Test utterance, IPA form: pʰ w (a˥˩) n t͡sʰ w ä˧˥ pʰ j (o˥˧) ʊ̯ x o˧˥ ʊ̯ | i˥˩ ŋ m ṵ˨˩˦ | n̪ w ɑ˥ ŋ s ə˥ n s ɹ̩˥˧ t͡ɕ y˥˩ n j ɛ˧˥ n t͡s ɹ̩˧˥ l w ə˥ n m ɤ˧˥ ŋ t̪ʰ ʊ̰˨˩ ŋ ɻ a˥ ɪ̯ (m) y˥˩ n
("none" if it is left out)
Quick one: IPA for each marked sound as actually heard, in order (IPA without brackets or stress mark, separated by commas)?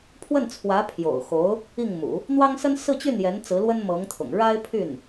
ə˥˩, o̰˨˩, pʰ